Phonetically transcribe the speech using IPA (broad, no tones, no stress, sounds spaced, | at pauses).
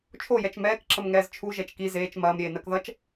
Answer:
t͡ʃʰ o j ɛ t͡ʃ m ɛː k ǁ ə m ŋ ɛː z t͡ʃʰ u ʒ ɛ t͡ʃ k i z eː t͡ʃ m ɐː m ɾʲ eː n ɜ k ð ʌ t͡ʃ